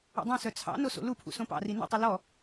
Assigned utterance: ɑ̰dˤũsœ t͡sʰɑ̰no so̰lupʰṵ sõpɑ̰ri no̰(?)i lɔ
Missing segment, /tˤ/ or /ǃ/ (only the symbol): tˤ